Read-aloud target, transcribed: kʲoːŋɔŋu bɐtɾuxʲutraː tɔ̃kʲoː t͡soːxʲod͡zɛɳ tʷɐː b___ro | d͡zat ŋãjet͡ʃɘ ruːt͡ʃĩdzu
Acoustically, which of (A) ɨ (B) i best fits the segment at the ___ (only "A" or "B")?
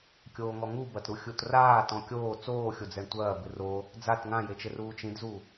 A